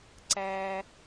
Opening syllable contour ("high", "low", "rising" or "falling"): low